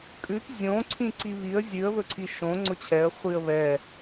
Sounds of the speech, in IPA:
kʼ ʉ t zʲ õ ǀʰ ĩ ǀ i β i ə̯ zʲ ʉ ə̯ β ɵ ǀʰ i ʃ õ ŋ͡ǀ ʊ t͡ɕʰ ɛ ə̯ χʷ i ə̯ β ɛ

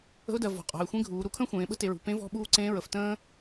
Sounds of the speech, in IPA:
ə̤˧˥ ʊ̯ d ɜ˩˧ v ɔ̤˩˧ qʼ ɔ̤˩˧ ɪ̯ xʷ ẽ˧˥ ɡʱ uː˩˧ ɾ u˩˧ kʰ ə̃ː˥ xʷ ẽː˩˧ ɓ ə̤˥ t e˩˧ ɹ ṳ˩˧ p ẽ˧˥ v ɔ̤˧˥ ɓ uː˧˥ ǀ ẽː˧˥ ɹ ə˩˧ f t ə̃ː˥

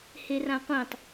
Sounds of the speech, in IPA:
h e r ã qʷ ĩ tˤ

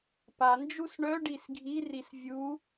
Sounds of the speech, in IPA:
p a n d͡ʒ u s ɳ œ ɖ i s ɡʱ i r i s vʲ u

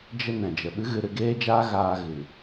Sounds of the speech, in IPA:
d͡ʒ ə˧ n ɛ̃˨ d͡ʒ ə˨ ɓ ɨ˦ ɣ ɨ˧ ɾ ɨ˧ ɡ eː˦ d͡ʒ aː˦ ɣ aː˧ ɣ ɨ˨

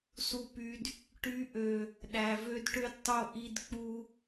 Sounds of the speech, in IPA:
s u˨ p y˨ d | ʈ y˨˦ ʔ ø˨ | ɗ æ˨ v ø˦ d ʈ ø˦ d tˤ o˦˨ ʔ i˦ d k͡p u˦

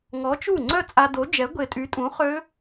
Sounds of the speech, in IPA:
ŋ ɔ˨˥ t͡ʃ u˥˩ ŋ͡ǀ œ˥˧ t͡sʼ a˧ d o˨˥ d͡ʒ ɛ˨˥ ɡʷ e˧ tʼ y˨˥ tʼ ũ˨˥ χ ø˦˥

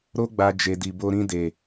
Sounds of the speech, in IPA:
ɾ o˦ ɡ͡b a˧ d͡ʒ e˧ d i˧ b o˦ ɾ ĩ˧ d e˨

